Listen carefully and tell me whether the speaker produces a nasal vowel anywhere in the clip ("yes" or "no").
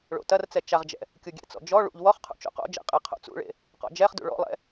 no